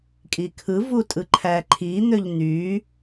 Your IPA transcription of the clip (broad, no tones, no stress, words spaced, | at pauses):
kʼikʰɯ vutʼɯǃʰæǃʰi n̪øʎn̪y